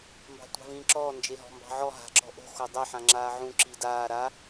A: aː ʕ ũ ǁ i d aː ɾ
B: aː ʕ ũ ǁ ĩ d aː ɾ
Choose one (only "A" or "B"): A